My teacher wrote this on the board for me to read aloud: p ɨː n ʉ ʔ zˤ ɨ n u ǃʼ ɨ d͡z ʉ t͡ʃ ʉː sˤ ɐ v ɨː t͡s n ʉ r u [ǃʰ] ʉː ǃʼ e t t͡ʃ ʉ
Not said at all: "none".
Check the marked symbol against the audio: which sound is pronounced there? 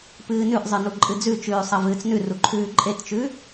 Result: ǃʰ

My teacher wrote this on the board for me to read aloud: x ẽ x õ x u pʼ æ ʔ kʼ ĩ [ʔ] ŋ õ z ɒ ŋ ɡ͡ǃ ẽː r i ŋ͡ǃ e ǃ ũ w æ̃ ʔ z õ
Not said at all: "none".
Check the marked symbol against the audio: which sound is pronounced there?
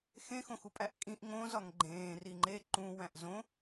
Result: ʔ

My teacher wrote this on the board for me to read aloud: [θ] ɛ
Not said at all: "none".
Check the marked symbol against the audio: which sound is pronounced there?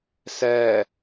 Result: s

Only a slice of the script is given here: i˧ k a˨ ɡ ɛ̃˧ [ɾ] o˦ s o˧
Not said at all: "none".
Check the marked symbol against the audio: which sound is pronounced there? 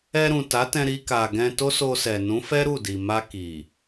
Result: t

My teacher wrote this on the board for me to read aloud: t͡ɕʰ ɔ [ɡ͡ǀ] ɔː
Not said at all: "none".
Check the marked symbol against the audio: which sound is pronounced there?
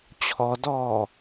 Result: d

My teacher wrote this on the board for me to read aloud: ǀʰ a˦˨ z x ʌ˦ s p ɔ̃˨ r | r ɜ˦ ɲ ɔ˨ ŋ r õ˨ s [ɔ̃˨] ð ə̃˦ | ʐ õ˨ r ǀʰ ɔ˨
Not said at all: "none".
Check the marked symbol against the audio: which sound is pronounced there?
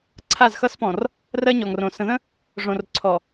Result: ə̃˨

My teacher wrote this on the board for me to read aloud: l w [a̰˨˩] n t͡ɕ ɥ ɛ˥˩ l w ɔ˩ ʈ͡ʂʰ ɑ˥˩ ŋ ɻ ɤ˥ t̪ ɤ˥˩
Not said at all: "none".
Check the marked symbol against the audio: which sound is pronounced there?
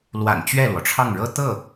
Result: a̰˨˩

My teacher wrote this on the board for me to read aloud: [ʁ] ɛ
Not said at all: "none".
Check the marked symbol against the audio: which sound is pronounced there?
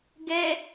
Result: ɡ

